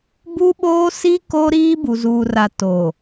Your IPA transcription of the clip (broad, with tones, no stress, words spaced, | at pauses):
bu˦ɓoː˦ si˦ ko˦ɾiː˦ bu˨zuː˨ra˨ toː˨